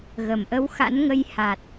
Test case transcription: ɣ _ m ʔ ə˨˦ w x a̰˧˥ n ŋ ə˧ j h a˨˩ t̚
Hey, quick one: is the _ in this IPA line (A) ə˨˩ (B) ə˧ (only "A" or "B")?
A